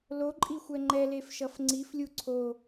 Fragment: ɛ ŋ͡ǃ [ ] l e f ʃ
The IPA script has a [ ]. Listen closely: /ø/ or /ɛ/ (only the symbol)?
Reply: ɛ